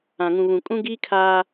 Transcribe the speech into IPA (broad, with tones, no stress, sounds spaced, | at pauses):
ã˨ ŋ ũ˨ β ũ˨ kʼ ũ˦ ɡ iː˦ kʰ aː˦